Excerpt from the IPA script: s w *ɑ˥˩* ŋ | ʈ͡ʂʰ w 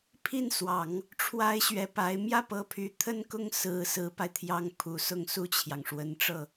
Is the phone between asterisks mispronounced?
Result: yes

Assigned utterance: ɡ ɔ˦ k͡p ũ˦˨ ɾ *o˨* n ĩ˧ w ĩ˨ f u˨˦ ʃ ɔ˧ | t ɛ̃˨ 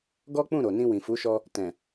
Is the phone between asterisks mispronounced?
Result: no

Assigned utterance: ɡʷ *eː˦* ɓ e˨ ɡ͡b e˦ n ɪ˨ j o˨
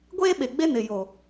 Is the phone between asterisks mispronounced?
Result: no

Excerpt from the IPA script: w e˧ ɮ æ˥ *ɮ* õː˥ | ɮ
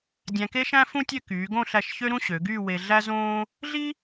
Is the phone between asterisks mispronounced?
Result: yes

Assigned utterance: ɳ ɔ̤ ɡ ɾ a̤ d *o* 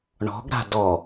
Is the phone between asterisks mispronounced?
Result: yes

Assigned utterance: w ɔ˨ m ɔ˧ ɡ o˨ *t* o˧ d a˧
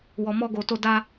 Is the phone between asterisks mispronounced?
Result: no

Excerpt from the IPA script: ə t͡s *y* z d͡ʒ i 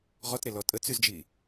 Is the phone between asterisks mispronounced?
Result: no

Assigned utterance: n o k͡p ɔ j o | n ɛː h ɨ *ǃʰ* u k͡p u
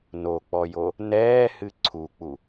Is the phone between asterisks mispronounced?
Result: yes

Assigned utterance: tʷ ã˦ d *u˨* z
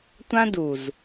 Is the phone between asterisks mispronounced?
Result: no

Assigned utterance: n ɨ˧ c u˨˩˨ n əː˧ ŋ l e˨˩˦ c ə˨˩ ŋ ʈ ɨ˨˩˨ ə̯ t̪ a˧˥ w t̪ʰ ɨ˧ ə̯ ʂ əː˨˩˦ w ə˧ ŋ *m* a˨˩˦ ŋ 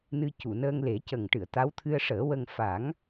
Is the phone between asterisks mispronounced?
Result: yes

